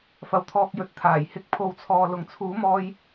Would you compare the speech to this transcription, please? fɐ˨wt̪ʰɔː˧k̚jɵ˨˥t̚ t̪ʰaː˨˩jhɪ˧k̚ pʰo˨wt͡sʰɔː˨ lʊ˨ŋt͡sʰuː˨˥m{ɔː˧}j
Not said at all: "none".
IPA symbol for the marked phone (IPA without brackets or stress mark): ɔː˧